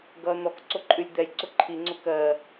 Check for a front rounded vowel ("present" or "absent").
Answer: absent